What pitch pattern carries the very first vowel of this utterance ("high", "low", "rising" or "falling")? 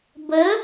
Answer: rising